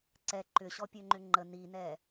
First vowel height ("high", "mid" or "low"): mid